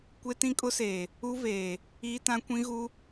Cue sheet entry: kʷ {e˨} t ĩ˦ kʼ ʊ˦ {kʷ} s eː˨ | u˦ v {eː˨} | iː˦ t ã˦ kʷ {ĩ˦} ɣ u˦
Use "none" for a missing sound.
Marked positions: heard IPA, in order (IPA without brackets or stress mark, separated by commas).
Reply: e˦, none, eː˨, ĩ˦